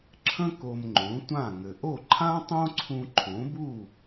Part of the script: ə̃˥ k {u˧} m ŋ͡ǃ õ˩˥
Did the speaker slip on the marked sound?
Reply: yes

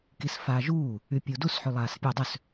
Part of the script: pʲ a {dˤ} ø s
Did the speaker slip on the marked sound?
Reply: no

